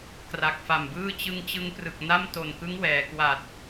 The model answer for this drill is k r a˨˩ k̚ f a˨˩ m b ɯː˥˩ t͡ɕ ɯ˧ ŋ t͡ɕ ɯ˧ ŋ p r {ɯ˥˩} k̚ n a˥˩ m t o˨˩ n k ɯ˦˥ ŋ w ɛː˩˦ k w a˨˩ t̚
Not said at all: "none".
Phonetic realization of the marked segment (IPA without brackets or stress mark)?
ɯ˨˩